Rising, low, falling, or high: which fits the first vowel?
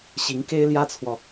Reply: rising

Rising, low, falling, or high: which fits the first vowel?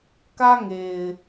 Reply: high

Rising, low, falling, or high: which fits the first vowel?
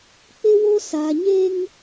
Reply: high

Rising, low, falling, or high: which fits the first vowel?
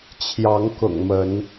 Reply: rising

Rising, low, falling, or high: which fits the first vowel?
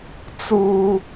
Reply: high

